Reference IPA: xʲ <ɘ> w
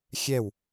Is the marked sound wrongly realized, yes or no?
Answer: yes